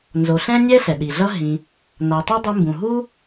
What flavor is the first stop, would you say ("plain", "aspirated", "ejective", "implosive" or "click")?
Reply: implosive